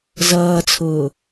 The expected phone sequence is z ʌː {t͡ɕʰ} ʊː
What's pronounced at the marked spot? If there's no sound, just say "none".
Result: t͡sʰ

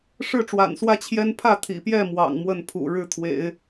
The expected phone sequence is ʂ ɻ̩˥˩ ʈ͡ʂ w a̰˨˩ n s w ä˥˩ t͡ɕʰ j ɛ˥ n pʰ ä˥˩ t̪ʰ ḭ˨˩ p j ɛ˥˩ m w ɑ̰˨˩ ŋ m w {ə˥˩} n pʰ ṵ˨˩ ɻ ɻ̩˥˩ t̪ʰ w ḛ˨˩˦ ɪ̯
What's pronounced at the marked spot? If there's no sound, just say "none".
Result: ə˥˩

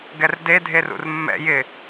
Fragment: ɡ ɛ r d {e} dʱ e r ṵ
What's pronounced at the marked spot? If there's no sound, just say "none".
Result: e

